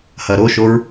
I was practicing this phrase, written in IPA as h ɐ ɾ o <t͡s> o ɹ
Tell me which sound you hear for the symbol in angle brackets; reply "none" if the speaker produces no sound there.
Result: ʃ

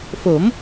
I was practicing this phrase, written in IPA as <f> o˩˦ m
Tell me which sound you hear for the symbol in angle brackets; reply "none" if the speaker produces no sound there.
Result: f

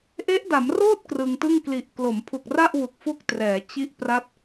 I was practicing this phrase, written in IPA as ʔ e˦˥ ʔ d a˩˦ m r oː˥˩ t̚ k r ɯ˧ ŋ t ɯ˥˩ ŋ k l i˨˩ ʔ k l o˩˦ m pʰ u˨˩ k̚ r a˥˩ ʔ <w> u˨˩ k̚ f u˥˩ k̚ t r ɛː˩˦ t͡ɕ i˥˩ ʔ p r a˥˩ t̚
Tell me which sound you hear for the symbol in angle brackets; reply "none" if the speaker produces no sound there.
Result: w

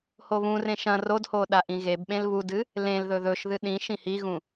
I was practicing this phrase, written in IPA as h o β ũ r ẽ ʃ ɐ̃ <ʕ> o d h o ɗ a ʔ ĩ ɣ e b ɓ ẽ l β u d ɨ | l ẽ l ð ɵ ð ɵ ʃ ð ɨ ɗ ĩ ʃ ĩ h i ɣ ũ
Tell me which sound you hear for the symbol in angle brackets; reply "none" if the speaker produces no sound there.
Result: r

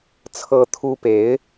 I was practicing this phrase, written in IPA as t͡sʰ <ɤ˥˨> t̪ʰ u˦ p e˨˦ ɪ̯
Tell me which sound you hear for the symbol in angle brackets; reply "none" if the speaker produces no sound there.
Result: ɤ˦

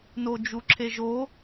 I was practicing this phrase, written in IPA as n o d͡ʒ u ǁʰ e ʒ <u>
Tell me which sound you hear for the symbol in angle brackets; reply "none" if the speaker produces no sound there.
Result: o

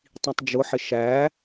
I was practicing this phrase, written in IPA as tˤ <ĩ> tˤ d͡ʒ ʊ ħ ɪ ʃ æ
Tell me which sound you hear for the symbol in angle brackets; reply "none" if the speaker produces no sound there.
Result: ĩ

